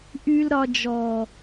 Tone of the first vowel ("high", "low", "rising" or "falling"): high